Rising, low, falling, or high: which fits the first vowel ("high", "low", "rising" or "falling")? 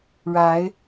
rising